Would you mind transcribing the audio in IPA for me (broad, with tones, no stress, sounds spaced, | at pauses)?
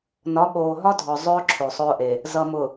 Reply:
n ɒ˨˦ ɓ oː˨ ɦ ɒ˦ dʱ ɔ˨ zˤ ʊː˦ ǁʰ o˨ sˤ ʊː˦ ʔ e˨ | z ʌ˨ m ʊ˨